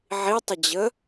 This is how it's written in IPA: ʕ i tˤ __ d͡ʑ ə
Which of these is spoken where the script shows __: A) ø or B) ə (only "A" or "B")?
B